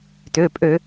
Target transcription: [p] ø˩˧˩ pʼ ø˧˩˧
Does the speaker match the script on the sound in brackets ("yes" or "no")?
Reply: no